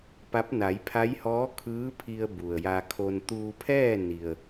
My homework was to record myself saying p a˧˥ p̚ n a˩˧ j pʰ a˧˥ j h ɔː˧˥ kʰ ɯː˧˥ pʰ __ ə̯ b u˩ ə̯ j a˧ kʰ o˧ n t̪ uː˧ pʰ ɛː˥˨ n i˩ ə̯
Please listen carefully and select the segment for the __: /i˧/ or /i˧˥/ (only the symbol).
i˧